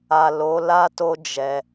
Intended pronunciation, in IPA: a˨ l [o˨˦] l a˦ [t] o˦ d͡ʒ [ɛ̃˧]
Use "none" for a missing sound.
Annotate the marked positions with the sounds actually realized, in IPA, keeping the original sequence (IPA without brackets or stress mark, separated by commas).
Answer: o˨˦, t, ɛ˧